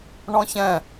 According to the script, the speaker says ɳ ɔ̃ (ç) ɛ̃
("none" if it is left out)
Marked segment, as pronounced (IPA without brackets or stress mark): ç